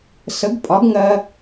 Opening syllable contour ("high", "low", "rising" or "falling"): rising